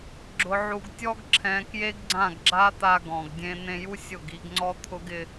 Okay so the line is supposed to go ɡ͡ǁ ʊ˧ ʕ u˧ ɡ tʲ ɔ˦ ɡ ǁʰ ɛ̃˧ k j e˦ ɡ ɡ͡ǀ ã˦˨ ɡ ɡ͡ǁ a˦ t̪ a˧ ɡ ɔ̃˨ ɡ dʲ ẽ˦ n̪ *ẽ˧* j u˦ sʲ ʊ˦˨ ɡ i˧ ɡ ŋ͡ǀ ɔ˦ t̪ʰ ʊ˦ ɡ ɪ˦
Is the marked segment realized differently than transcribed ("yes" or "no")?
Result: no